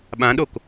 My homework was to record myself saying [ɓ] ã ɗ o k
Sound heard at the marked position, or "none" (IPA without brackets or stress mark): ɓ